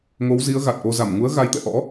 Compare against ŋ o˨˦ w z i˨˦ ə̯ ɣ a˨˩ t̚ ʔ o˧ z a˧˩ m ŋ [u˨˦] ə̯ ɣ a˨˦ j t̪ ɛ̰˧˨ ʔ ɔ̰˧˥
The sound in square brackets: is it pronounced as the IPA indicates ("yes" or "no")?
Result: yes